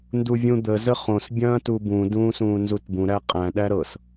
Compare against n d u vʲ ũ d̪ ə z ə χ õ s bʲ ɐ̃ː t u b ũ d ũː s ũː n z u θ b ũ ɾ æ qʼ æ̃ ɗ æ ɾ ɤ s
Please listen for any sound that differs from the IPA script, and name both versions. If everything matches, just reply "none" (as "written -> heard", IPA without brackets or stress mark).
θ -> t